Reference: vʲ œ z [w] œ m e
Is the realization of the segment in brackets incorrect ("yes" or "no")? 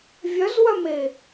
no